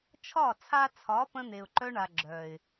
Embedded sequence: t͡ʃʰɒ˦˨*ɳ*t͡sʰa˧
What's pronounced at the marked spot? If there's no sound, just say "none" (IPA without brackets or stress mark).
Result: none